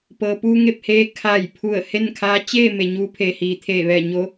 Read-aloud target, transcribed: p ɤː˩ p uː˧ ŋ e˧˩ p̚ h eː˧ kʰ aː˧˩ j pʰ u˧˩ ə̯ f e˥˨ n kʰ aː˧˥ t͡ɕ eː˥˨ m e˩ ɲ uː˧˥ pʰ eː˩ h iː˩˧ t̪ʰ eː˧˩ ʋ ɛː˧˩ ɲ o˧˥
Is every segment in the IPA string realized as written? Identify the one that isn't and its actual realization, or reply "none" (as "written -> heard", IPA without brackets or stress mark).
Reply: f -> h